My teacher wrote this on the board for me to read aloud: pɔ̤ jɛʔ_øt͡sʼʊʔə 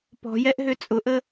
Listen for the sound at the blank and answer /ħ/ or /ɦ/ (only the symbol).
ɦ